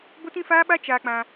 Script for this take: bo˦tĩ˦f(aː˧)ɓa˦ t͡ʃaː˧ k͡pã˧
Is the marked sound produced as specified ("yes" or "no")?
no